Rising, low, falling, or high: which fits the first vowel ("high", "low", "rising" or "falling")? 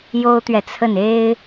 high